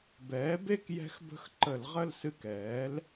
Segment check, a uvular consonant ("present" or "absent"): present